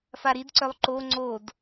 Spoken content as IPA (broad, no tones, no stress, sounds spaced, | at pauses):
f a ɾ i d ǀ œ lˠ ǃ o ŋ͡ǀ o d